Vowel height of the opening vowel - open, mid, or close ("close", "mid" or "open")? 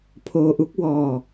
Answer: mid